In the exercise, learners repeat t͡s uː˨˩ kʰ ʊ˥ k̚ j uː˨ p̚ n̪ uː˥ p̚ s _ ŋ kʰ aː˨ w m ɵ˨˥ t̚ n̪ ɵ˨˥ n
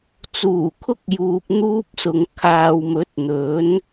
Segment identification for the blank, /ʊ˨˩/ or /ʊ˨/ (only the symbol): ʊ˨